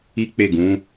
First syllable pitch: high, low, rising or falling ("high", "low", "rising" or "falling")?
high